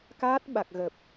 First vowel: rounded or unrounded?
unrounded